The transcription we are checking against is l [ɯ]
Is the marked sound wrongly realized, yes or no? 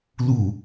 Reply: yes